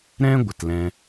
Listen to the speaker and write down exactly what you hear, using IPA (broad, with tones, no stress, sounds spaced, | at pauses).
ɾ ɛ̃˦ ɡʷ ə˨ t l ɛ̃˦